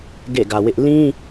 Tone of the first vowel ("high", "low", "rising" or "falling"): falling